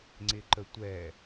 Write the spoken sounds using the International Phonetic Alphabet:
ŋ͡ǀ ɪ ǃ ə tʷ ɛ

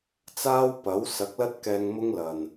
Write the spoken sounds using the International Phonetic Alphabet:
t͡s aː˥ w p ɐ˨˥ w s ɐ˨˥ k̚ l ɐ˥ t̚ k ɛː˧ ŋ m ʊ˥ ŋ l ɐ˨ n

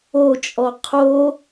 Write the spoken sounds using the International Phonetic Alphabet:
o t͡ʃʼ ɔ qʰ o

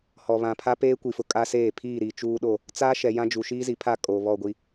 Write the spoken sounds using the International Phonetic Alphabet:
h ɔ˨ β ã˨ pʰ a˦ p eː˦ kʷ i˨ f ʊ˨ kʼ a˦ s eː˦˨ pʰ iː˦˨ ɾ i˨ t͡ʃ uː˦ ɗ o˦˨ | t͡s aː˦ ʃ ɛ˨ j ã˦ d͡ʒ u˨ ʃ iː˦ z i˨ pʰ a˦˨ kʼ o˨ β ɔ˦˨ ɡʷ i˦

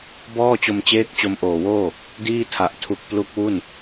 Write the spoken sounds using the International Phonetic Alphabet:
b ɔː˥˩ t͡ɕ o˧ m t͡ɕ eː˦˥ k̚ t͡ɕ o˧ m ʔ oː˨˩ w oː˥˩ | d iː˥˩ tʰ a˨˩ ʔ tʰ u˨˩ k̚ p l u˦˥ k̚ w u˥˩ n

